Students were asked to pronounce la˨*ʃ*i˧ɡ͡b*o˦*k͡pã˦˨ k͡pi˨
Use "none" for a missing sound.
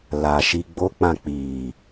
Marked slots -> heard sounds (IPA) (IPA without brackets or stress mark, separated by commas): ʃ, o˦